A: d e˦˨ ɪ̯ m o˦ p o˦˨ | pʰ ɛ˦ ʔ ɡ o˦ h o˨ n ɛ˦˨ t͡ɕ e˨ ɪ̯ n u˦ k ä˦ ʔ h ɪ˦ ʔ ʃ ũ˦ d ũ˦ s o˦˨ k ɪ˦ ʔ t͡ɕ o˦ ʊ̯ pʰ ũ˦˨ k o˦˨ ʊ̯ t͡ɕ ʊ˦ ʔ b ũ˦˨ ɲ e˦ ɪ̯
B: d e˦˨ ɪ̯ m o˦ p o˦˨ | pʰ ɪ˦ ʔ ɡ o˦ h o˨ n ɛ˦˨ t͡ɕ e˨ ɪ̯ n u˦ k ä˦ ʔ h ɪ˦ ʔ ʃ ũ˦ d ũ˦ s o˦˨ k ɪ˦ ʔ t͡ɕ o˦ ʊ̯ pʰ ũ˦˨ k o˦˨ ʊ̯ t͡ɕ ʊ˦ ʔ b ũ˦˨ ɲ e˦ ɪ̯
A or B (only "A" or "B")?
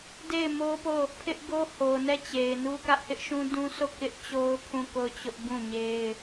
B